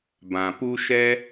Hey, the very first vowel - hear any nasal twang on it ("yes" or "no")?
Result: yes